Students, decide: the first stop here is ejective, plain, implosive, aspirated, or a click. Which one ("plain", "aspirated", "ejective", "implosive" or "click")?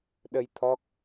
implosive